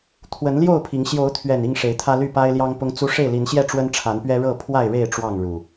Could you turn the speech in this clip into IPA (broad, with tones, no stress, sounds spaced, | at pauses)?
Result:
t̪ʰ w ə˨˦ n l j o˥˨ ʊ̯ pʰ i˨˦ ŋ ɕ j o˨˦ ʊ̯ t̪ʰ ɥ ɛ˨˩ n i˥˨ ŋ ʂ e˨˦ ɪ̯ t̪ʰ ä˦ l y˥˨ p a˦ ɪ̯ l j ɑ˦ ŋ p ʊ˦ ŋ t͡s u˦ ʂ e˥˨ ɪ̯ l i˨˦ n ɕ j ɛ˥˨ ʈ͡ʂ w ə˦ n ʈ͡ʂʰ a˨˦ n p ɥ ɛ˦ ɻ ɤ˥˨ pʰ w a˥˨ ɪ̯ ɻ e˥˨ ɪ̯ ʈ͡ʂ w ɑ˥˨ ŋ ɻ u˨˩